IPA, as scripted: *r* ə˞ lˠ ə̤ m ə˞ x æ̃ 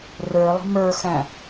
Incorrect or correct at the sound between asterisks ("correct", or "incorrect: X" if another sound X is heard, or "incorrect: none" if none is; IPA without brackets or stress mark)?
correct